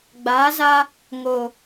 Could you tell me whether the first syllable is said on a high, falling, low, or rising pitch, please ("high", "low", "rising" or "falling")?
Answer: rising